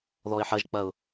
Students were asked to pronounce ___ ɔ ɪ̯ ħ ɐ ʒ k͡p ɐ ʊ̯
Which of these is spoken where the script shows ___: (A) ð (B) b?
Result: A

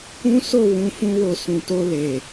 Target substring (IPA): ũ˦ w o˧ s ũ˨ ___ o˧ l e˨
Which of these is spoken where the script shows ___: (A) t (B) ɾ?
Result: A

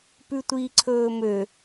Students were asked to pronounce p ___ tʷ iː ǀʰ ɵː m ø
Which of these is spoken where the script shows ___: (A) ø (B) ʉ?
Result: B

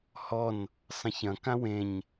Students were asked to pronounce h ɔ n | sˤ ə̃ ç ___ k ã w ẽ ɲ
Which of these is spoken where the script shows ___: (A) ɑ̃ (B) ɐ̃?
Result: B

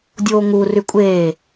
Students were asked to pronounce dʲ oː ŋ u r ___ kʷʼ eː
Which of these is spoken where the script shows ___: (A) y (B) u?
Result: A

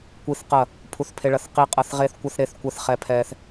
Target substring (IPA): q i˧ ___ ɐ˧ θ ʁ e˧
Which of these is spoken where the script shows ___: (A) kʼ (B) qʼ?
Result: B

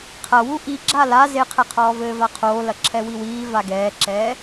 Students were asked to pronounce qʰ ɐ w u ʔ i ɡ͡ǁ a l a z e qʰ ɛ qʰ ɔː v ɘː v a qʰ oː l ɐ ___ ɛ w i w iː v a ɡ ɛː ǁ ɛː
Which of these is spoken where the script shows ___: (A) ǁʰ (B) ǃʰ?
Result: A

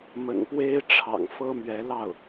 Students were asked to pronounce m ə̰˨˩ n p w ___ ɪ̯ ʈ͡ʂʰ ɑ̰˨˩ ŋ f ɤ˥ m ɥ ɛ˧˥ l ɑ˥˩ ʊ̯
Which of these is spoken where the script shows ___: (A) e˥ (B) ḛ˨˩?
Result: A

